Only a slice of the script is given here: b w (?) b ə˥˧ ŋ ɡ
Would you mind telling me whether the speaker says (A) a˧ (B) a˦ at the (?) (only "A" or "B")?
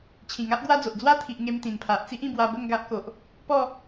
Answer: A